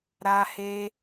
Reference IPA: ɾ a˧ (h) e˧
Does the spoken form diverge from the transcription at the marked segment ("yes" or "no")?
no